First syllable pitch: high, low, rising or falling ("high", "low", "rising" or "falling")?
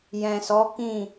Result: low